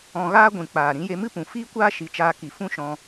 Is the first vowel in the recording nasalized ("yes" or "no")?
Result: yes